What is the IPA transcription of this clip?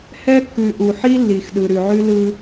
h ɛ˦ kː ʉ˨ ʔ u˨ ħ i˦ lː i˨ x ɗ ɯ˨ ɾ ʉ˨ ʕ ʉ˦ l ɯ˦

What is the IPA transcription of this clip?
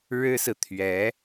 ɻ ɻ̩˥ s ɹ̩˨ t̪ʰ ɥ ɛ˧˥

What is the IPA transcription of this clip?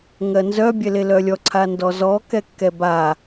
ŋ ɜ n z œ bʲ ɛ l e l œ lʲ ɔ ǀʰ a n d ɔ z ɔ k ɛ kː ɛ b a

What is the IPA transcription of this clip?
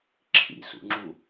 ǁʰ ḭ s ṵ ŋ͡ǁ u

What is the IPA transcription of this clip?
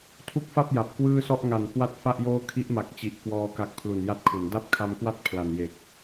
tʰ u˦˥ k̚ f a˥˩ p̚ j a˨˩ p̚ k w ɯː˥˩ s ɔ˥˩ ʔ ŋ a˨˩ n k w a˦˥ t̚ f a˥˩ ʔ j oː˥˩ kʰ i˦˥ ʔ m a˨˩ k̚ t͡ɕ i˨˩ ʔ k w ɔː˧ k a˦˥ k̚ pʰ l u˨˩ n j a˥˩ t̚ kʰ u˩˦ n d a˥˩ p̚ kʰ a˧ m k w a˥˩ t̚ pʰ l a˨˩ n j e˨˩ k̚

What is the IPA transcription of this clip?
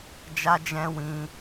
d͡ʒ a˧ d͡ʒ ɛ̃˧ w ĩ˧

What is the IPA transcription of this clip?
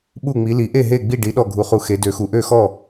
ɓ u˥˩ ŋ͡m i˨˥ l i˨˥ ʔ e˥˩ ɦ e˥˩ ɡ͡b i˥˩ ɖ i˨˥ ɗ ɔ˥˩ ɡʱ u˨˥ χ u˨˥ x e˨˥ d ø˨˥ x u˨˥ ʔ ø˥˩ x ɔ˥˩

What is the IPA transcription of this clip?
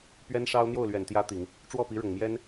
p ɥ ɛ˥ n ʂ ɑ˥ ʊ̯ n̪ j o˥˩ ʊ̯ l ɥ ɛ˨˩ n t̪ j ä˥ t̪ i˨˩˦ ŋ | ʈ͡ʂ w ɔ˥˩ p i˧˥ ɻ ʊ˨˩ ŋ m j ɛ˥ n

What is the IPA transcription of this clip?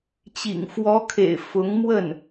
t͡ɕ ḭ˨˩ ŋ f w ɔ˧˥ kʰ ḛ˨˩ ɪ̯ f ʊ˧˥ ŋ m w ə˥˩ n

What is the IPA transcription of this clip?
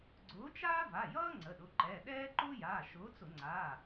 ɡ͡ǀ ʊː˨˥ t͡ʃ aː˥ v a˩˧˩ j ʌː˥ ŋ͡ǀ ə˩˧˩ ɗ ʊ˩˧˩ ǃ ɛ˩˧˩ ɗ ɛː˥ ǃ ʊː˥ j aː˩˧˩ ʃ ʊː˨˥ t͡s ʊ˧˩˧ ŋ͡ǀ a˩˧˩

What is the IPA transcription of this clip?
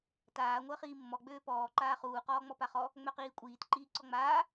t aː ŋʷ əː χ iː mː ɔ ɡ͡b øː p ɔː ǃ aː χ uː q ɔː ŋ͡m ɔ p a χ ɔ | ŋ͡m œ q iː kʷʼ iː t ǃ iː ǀ ɔ ŋ͡m aː

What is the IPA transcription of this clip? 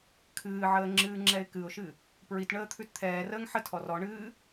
kʰ ɨː ʕ əː ŋ͡ǁ ɨː ŋ͡ǁ ɛ ɪ̯ k ɨ ʊ̯ ʃ ɨ | p ɹ i t ɳ əː t̪ʰ ʉ t t̪ʰ ɛː r əː ŋ ħ ə tʰ ɔ r ɔ ɳ ɨː

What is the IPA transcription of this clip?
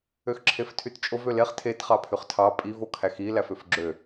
ø x ǁʰ e f tʰ y t t͡ʃʼ o v ø l e χ tʰ e t χ ɑ pʰ y χ tʰ ɑ pʼ i v o kʰ æ x i l æ f ø f ɡ͡ǁ ø

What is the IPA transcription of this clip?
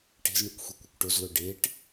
ʈ e̤ z ɳ ɯ kʷ xʷ e kʷ ɯ kʷ ʈ o z l o ɖ e ʈ

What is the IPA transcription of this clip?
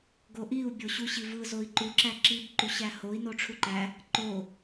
ɡ o ʔ i u̯ bʲ o ɕ u ɕ i v ɯ z o i̯ ǃ u ǁ æ ǁ i b ǃ u ɕ æ h o i̯ n o ʈ͡ʂʰ u ǃ æ | ǃ o

